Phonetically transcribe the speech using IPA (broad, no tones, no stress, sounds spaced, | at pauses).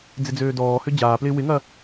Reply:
d͡z ɪ d͡z øː d ɔː h ø d͡ʑ aː p l ɪː w ɪ ŋ ɐː